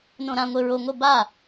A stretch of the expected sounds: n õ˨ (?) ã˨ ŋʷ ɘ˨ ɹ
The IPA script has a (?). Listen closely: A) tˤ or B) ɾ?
B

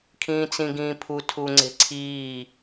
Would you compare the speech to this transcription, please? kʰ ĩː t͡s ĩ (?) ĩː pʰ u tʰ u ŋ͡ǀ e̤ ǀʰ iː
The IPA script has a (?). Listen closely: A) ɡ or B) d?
A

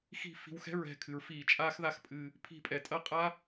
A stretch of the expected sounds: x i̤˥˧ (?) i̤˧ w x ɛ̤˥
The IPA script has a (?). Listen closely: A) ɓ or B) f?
B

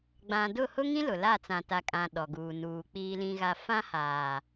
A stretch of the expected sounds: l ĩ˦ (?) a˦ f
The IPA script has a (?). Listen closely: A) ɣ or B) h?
A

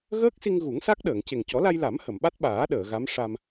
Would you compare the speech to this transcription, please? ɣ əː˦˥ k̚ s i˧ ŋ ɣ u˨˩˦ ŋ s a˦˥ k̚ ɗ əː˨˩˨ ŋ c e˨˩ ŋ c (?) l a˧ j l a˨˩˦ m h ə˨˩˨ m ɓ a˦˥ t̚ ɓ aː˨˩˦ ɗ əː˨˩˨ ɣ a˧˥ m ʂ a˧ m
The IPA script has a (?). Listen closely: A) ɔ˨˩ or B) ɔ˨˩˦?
B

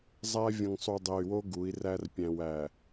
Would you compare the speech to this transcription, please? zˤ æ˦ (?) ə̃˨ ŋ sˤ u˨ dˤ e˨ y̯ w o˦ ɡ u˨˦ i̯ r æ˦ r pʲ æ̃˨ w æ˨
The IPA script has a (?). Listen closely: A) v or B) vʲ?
B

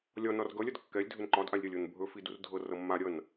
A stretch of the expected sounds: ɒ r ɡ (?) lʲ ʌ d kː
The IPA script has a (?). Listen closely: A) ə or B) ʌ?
B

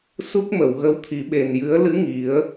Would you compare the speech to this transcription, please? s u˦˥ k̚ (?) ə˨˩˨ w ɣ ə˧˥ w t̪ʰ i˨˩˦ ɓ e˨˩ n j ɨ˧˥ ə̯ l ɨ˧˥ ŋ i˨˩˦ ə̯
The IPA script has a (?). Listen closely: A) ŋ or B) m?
B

